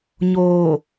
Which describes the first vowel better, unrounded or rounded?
rounded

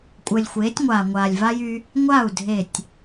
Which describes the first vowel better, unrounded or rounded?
unrounded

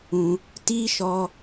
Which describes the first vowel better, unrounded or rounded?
rounded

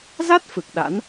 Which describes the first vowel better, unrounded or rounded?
unrounded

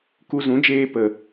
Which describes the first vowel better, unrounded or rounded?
rounded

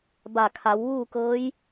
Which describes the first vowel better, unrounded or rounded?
unrounded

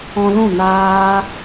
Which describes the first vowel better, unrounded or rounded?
rounded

